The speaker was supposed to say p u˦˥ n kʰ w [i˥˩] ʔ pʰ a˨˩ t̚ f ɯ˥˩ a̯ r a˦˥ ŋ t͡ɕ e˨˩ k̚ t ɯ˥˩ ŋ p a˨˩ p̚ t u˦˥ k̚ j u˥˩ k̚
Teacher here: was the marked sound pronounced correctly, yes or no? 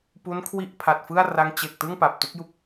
yes